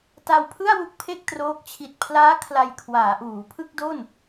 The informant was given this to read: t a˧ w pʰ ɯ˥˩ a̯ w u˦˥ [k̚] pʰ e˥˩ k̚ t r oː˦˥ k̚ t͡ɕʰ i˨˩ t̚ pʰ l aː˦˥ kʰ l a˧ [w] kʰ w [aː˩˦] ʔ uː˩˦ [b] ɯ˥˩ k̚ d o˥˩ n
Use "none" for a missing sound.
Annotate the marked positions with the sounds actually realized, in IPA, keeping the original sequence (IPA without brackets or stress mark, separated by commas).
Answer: k̚, j, aː˩˦, pʰ